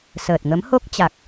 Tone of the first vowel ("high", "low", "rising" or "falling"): low